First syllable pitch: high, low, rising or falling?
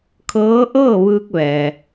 rising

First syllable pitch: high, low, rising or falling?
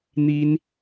high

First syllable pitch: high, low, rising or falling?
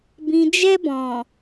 low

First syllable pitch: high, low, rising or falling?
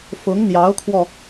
rising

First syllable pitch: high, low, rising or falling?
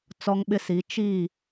high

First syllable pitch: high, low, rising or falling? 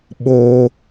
high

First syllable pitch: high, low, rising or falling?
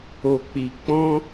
low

